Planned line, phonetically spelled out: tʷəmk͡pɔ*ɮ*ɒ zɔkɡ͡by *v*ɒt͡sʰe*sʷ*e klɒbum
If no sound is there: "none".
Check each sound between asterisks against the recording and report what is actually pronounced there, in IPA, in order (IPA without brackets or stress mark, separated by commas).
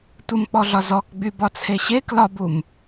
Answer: ɮ, b, ɕ